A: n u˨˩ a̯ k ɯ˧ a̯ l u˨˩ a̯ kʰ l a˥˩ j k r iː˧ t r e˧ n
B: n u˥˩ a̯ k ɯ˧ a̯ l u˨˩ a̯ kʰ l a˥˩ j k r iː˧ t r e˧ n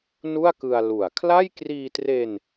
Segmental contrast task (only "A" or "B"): B